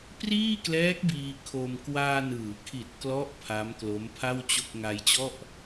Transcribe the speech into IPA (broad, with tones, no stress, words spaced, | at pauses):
priː˥˩klɛː˦˥k̚ biː˧kʰo˧m kwaː˧nɯː˩˦kʰi˨˩t̚klɔ˦˥ʔ pʰa˦˥mklo˦˥mpʰa˥˩wt͡ɕo˥˩k̚ ŋa˧jt͡ɕɔ˥˩ʔ